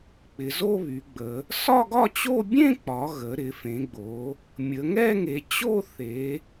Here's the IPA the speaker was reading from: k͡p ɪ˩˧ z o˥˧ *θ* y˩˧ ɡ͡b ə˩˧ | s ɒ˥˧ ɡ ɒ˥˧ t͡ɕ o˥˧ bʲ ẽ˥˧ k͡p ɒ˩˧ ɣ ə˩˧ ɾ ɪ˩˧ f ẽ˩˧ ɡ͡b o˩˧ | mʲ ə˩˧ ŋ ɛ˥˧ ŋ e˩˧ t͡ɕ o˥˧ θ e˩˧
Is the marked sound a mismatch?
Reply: yes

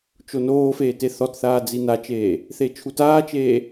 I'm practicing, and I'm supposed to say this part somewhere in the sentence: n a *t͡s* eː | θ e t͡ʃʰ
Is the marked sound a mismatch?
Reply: yes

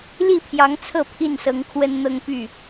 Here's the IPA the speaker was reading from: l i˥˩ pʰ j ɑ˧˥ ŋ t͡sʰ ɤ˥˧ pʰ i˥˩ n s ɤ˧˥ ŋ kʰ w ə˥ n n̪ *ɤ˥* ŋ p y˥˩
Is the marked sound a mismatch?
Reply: no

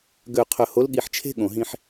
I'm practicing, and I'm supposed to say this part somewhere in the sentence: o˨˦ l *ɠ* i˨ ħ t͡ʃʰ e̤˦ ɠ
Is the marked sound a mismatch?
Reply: no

